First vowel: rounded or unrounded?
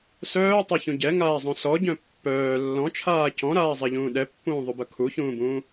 rounded